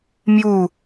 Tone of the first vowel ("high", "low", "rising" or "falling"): falling